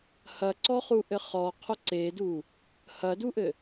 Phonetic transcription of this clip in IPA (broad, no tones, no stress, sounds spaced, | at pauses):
h ɐ ǀ ɔ χ u ʔ ɘ χ ɔ qʰ o ǀ e d u | h ɐ d u ʔ ɘ